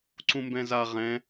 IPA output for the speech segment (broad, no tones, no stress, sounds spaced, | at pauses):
ǀ ũ m b ɛ̃ z a ʁ ɛ̃